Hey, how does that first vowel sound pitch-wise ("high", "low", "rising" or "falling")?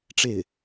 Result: falling